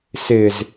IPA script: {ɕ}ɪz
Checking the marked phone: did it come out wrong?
yes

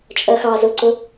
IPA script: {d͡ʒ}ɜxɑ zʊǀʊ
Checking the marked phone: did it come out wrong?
yes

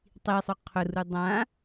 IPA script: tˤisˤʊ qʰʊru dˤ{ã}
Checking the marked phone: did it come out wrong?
no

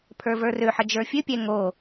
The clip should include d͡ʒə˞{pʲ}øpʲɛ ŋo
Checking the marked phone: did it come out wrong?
yes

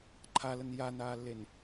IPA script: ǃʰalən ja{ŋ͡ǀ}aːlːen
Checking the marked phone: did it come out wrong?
yes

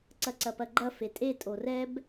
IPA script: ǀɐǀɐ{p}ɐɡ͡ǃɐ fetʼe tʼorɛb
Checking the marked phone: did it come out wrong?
no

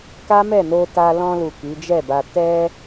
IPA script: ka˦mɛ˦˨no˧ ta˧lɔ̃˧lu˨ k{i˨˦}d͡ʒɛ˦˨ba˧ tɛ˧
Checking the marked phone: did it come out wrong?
no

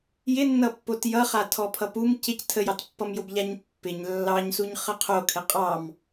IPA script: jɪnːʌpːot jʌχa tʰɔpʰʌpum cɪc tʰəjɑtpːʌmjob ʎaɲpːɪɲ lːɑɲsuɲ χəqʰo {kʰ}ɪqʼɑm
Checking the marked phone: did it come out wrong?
no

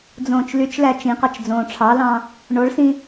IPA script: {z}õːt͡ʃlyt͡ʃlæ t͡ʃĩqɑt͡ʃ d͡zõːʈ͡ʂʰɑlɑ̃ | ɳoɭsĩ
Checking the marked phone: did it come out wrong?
yes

